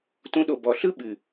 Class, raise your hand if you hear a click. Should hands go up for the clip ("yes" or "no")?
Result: no